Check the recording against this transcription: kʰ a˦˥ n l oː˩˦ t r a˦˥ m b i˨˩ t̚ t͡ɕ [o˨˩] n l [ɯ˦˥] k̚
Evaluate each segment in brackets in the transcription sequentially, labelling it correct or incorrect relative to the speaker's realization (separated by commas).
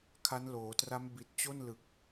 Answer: incorrect, incorrect